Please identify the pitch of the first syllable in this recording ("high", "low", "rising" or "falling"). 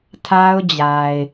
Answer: high